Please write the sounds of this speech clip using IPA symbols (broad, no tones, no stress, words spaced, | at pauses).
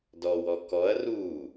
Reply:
dɔwɔ kɔɐ̯ ruː